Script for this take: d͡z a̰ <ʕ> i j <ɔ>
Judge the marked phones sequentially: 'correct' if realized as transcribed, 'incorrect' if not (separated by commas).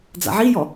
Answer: correct, correct